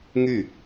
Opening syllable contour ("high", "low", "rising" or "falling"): falling